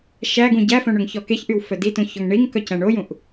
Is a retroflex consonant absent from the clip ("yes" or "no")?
no